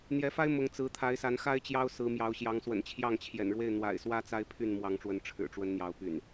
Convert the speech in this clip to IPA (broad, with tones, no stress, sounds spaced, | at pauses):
n̪ j ɛ˨˦ f a˦ ɪ̯ m ʊ˨˦ ŋ t͡s ɹ̩˨˦ t̪ʰ a˨˦ ɪ̯ s a˨˦ n x a˦ ɪ̯ t͡ɕ j ɑ˦ ʊ̯ s ɹ̩˨˦ m j ɑ˨˦ ʊ̯ ɕ j ɑ˨˦ ŋ s w ə̰˨˩ n t͡ɕʰ j ɑ˥˨ ŋ t͡ɕʰ j ɛ̰˨˩ n ɻ w e˥˨ ɪ̯ n̪ w a̰˨˩ ɪ̯ s w ä˦ t͡s a˦ ɪ̯ pʰ y˥˨ n m w ɑ˨˦ ŋ ʈ͡ʂ w ə˨˦ n ʈ͡ʂʰ ɻ̩˨˩ ʈ͡ʂ w ə˨˦ n n̪ j ɑ˨˦ ʊ̯ p y̰˨˩ n